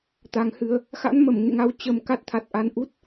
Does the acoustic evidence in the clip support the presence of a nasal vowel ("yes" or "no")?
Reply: no